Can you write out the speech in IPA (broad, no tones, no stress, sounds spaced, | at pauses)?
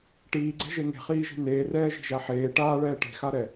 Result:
ʈ iː ɡ͡ǀ ɛ̤ ʒ e ŋ e̤ χ iː ʒ e̤ n eː r ɛː ʒ i̤ ʒ a ħ eː ʈ aː ɭ ɛː ʈ e̤ x a ɾ ɛ